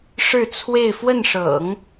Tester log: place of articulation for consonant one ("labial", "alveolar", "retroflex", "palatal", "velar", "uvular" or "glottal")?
retroflex